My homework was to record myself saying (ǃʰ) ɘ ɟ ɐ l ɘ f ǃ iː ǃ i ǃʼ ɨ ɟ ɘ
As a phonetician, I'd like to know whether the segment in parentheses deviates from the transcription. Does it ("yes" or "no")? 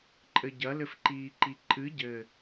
yes